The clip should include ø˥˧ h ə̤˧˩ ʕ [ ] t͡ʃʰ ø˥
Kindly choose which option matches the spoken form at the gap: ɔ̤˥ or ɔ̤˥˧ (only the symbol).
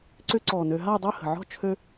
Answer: ɔ̤˥˧